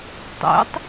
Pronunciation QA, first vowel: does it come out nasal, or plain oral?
oral